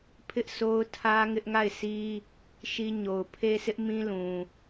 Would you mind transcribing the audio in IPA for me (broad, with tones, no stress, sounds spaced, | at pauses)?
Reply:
pʰ ɪ˦ ʔ s o˦ ʊ̯ tʰ ä˦ ŋ ɪ˦ ʔ ŋ a˦˨ ɪ̯ s i˦ | ʃ i˦ ɲ o˨ ʊ̯ pʰ e˦ s ɪ˦ ʔ m ĩ˦ l ũ˨